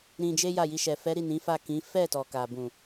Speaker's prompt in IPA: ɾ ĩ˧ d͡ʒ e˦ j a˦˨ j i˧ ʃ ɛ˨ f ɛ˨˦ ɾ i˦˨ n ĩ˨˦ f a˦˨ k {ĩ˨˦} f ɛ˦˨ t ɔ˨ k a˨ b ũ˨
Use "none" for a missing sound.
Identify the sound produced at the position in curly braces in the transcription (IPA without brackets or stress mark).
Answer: ĩ˨˦